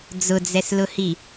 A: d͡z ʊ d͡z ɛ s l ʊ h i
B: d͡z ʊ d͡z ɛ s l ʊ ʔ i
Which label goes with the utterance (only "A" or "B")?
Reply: A